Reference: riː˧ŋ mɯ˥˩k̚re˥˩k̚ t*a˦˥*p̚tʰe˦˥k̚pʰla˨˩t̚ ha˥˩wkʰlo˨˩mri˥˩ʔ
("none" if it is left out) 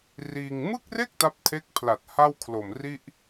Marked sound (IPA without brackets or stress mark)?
a˦˥